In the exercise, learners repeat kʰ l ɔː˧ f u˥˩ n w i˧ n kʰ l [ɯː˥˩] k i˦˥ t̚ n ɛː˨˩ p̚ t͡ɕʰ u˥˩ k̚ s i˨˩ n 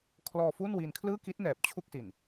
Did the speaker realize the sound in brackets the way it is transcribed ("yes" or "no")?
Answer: yes